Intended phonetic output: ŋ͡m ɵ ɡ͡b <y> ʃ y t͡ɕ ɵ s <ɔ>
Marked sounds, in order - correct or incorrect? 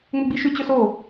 incorrect, incorrect

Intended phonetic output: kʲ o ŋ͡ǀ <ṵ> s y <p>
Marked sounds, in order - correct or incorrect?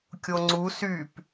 incorrect, correct

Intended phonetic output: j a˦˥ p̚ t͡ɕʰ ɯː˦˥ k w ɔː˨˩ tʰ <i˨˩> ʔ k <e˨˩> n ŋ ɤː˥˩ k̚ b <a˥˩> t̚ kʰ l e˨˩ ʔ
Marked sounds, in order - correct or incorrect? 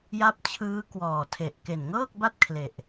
incorrect, correct, correct

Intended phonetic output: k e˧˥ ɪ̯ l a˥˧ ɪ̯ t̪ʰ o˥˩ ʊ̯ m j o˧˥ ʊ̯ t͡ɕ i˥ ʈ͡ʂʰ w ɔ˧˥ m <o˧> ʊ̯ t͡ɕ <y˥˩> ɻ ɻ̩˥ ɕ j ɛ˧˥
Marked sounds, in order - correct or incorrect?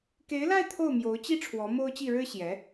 incorrect, incorrect

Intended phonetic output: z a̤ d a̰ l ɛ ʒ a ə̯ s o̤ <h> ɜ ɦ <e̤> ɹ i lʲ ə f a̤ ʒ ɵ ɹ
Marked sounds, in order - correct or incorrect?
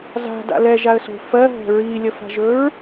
incorrect, incorrect

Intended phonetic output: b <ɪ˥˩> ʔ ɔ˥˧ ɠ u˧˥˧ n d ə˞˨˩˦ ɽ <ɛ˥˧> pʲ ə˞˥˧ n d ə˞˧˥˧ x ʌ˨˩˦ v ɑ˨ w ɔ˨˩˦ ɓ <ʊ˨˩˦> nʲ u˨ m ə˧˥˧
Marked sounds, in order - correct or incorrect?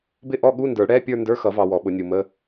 correct, incorrect, correct

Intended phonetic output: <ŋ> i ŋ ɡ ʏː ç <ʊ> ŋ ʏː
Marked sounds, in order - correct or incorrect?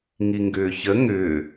correct, incorrect

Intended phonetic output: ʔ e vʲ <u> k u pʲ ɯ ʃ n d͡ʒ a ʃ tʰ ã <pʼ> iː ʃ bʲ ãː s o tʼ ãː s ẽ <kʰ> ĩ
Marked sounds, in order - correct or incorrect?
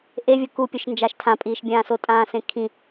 incorrect, correct, correct

